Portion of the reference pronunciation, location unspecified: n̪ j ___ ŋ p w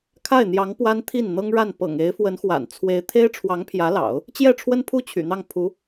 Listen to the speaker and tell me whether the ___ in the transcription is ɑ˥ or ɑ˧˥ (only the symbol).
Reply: ɑ˧˥